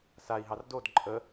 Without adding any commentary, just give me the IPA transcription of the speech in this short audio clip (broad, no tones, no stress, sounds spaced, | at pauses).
s a i̯ ɦ ɑ r d o d ǃʼ ə